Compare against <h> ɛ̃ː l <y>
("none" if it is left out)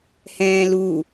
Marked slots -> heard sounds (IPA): h, u

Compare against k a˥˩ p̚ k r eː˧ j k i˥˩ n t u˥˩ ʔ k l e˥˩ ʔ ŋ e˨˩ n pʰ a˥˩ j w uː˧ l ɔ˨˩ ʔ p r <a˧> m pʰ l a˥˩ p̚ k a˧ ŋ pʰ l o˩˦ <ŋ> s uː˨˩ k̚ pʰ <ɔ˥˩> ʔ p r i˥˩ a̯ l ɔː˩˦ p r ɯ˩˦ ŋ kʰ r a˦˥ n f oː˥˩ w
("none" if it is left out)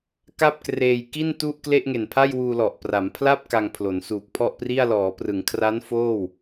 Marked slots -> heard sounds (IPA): a˩˦, n, ɔ˥˩

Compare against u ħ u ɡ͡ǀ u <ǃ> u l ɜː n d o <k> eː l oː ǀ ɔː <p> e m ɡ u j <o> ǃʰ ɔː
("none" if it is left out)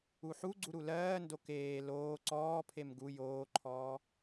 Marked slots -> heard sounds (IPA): ɾ, k, pʰ, oː

